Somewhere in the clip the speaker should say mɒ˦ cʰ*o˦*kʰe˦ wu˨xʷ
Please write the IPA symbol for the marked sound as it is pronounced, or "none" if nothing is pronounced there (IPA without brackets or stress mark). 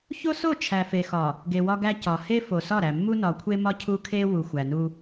u˦